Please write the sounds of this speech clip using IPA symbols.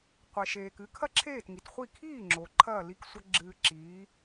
qʷɛ˩ʃeː˩kɨ˩˥ kʰɐ˥ǁʰeː˥˩tŋi˩tχʷi˥˩ kʰiː˥˩ŋ͡ǁo˩ ǃʰɐː˥˩li˥˩k sʷɐ˥ ɡ͡ǁɨː˧ǁiː˩˥

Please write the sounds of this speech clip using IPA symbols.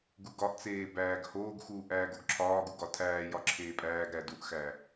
ɡuɡɒʔt͡seː bæːɡhoːɡxuːʔ æːɡoɡǁʰɒːɡu ɡɒtʰæːjɒ ǁʰeːpʼæːɡɾæ duʔxæ

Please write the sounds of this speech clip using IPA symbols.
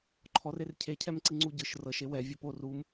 ǃʰɔrer cʰecʰɛmǀi ŋ͡ǀuɟɯʃ rɤʃ ewɛ vʲɔpo rum

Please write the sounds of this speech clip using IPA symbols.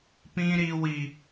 pĩ˦ɾi˦wi˦

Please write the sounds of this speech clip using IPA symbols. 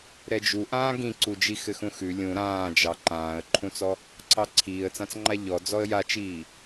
ɾɛd͡ʒuʔãː ɡĩǀud͡ʒi xɘxũxʉ lʲũ ɾãːd͡ʒɑ ǃãːə̯ǃʰũt͡sɔ | ǀʰɑǀʰiːə̯t͡sãt͡sŋ͡ǃa ʎɔ d͡zɔə̯jat͡ʃiː

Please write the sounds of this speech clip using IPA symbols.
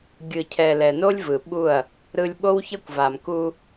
ɡʲɯ˨cʰɛ˨ lɛ˨no˦lʲvɯ˨ɓu˦˨ɐ̯ | ɾɯ˨lʲ ɓo˦wçʌ˦kʷva˨m ku˦

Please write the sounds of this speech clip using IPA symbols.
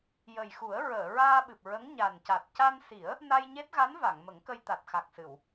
jə˨˩jxu˨˩˦ə̯ ɹəː˨˩˨ɹaː˧ɓɨ˨˩p̚ ɹə˧˥ŋɲa˨˩nca˨˩t̚ ca˧nsi˨˩˦ə̯ | na˧jɲe˦˥t̚ɣa˧˥n va˨˩˨ŋmə˨˩˦ŋkə˧jt̪a˨˩t̚ xa˨˩k̚sɨ˨˩˨w

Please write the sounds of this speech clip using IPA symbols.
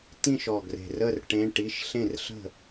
tĩ˥˨ʃ ɔ˨˩ɡre̤˨˩rə˥˨r ʈẽ˧˥˧ʈi˧˥˧ʃ ɬẽ˥˨rɬə̤˥˨

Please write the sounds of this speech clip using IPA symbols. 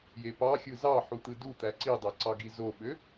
jepɑxʲɯ zɑ ħut̪ɯdut̪æ ǀidˤe ǀɑɡizoɓø

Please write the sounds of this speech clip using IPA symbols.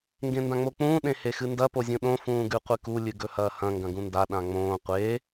ŋɡẽndãŋ͡mok͡pũː ɗẽhexɨndɐ pozʲũɗõ fũːɡʉqʷɨku lʲɨɡɵhɐːhɐ̃ ŋɡɐ̃ɡũnda ɗãŋ͡mõː qʷeː

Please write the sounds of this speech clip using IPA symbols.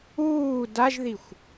uː daʒðixʷ

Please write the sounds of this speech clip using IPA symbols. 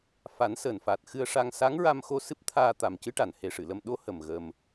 fa˨˩˦nsəː˨˩n fa˨˩t̚ xɨ˧ə̯ʂa˧ŋ sa˧˥ŋɹa˧mxo˧ sɨ˦˥p̚t̪ʰaː˧ t̪a˨˩mcɨ˧˥ ʈa˨˩nhe˧ ʂɨ˨˩˨lə˧m ɗo˧˥hə˨˩m ɣə˧m

